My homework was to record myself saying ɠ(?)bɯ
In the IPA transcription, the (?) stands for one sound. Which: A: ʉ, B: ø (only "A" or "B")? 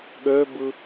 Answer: B